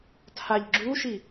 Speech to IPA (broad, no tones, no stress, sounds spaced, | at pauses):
tʰ a ʎ ɡ͡ǁ u ʃ i